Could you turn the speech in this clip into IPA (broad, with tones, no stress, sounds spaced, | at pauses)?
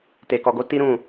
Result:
t e˨ k ɔ˨ ɡ o˨˦ t i˦ ɾ ũ˦˨